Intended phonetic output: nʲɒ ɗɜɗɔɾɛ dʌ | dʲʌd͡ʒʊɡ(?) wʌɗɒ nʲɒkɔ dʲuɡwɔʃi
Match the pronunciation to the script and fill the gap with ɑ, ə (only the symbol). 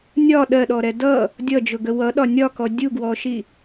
ə